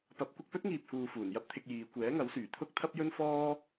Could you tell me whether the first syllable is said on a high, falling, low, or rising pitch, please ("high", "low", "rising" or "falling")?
rising